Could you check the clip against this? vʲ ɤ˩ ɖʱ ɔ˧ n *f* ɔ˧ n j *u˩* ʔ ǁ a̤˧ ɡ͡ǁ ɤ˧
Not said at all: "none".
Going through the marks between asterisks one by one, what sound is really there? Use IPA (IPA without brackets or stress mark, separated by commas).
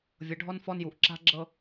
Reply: f, u˩